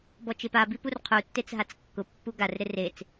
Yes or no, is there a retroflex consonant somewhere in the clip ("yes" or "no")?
no